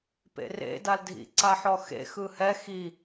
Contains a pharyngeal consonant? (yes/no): yes